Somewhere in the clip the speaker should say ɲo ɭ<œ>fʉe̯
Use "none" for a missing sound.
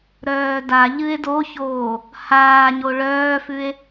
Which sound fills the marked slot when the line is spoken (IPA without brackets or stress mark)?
œː